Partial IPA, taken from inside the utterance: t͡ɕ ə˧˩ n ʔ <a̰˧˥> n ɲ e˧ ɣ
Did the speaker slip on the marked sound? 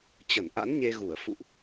no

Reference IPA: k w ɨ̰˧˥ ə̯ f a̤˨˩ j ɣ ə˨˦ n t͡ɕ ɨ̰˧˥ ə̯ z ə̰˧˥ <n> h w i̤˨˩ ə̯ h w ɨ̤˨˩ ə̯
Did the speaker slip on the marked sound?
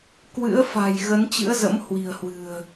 yes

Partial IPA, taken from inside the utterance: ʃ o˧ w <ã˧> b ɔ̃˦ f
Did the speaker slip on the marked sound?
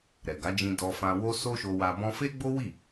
yes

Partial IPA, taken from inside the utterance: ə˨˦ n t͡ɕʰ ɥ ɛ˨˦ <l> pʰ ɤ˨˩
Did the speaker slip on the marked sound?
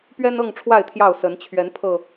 yes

